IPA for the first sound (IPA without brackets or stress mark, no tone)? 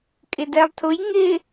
kʼ